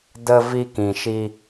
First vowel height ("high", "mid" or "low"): mid